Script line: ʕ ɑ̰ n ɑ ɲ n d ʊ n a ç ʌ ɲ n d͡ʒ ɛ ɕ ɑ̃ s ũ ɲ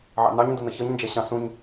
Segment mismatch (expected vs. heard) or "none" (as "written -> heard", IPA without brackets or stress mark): a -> ʌ